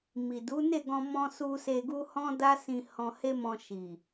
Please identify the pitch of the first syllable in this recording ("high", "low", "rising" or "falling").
low